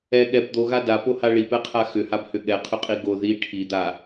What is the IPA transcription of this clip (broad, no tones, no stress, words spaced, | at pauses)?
ɛ ɠɛb d̪oɣa dapoha ɭipɛqʰa xʏhabhʏ ɠɛqʰʏqʼi ɡo ði ʈʰid̪a